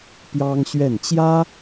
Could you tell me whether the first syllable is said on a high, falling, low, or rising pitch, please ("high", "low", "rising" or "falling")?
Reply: high